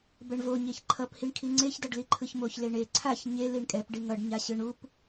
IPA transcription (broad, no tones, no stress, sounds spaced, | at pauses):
b ɛ ɳ v o ɲ e ç ǃʰ ʌ p h i ɳ kʰ i ŋ͡ǀ e ç d ʌ ɖ l i ǃʰ ɯ ç m o ç l e ɳ e ǀʰ a ç ɲ e l i ɳ kʼ ɛ p ɖ i ŋ ʌ ɖ ɲ a ɕ ɯ ɳ u p